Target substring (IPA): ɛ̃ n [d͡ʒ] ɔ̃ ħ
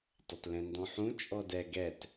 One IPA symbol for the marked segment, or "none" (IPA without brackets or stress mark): d